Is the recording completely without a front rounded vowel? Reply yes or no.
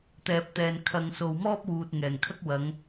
yes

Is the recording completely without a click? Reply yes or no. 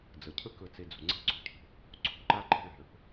no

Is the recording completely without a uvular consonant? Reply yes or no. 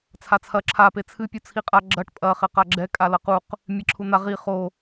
no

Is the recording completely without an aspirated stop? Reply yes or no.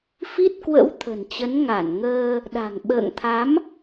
no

